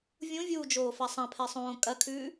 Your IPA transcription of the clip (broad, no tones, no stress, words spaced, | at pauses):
vʲũvʲuːd͡ʒoːfa sˤɐ̃pʰɛsˤõː kʼɐkʰʉː